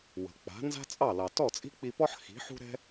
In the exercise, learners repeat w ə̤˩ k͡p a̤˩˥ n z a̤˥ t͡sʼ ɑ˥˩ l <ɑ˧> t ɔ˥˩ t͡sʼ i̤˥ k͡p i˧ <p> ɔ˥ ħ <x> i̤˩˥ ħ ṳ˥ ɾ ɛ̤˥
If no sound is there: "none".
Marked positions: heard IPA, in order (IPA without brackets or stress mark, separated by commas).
ɑ˩, p, x